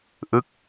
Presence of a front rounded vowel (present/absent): absent